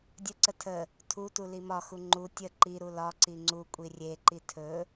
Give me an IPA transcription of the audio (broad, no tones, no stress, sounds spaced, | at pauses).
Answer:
dʲ ə ǀ ə tʰ ə | tʰ u t u l i m ɒ x u ŋ͡ǃ u tʲ ə ǃ i ɾ u l ɒ ǀ i ŋ͡ǀ u kʷʼ i rʲ e ǃ i tʰ ɵ